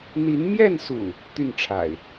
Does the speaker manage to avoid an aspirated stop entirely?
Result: no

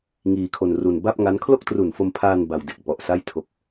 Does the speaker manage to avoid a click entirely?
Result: yes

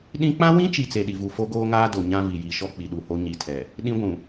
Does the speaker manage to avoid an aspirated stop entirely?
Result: no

